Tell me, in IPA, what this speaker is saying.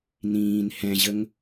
n ĩː n h ɛ̃ ʑ ə ŋ

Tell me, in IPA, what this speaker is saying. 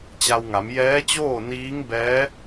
t͡ɕ a˧ w ŋ a˩˧ m j ɛː˧˥ t͡ɕ oː˥˨ n iː˧˥ ŋ b ɛː˧˥

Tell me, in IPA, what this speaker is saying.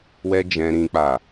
w ɛ˦ d͡ʒ ɛ̃˦ ɾ ĩ˦ k͡p a˦˨

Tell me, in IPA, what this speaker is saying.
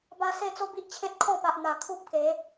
b a˧ s e˥˧ t͡s o˦ b i˦ ʔ t͡ɕʰ ẽ˦ t̚ kʰ ɔ̃˥˧ p a˨ ʔ n̪ a˨˩ kʰ u˦ p̚ k e˨˦

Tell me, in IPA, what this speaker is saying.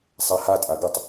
sˤ ɛ h a tʼ a ɡ ɪ tˤ

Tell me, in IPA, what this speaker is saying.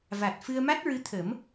v a˨˩ t̚ f ɨ˧ ə̯ m a˦˥ t̚ ɹ ɨ˧˥ t̪ʰ ə˨˩˦ m

